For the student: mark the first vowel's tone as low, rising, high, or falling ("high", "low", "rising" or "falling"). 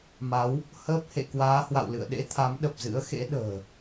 rising